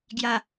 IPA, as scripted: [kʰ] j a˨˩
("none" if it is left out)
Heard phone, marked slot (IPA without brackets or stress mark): ɡ